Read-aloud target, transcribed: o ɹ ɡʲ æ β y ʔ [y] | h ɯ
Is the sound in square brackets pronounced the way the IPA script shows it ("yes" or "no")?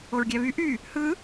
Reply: yes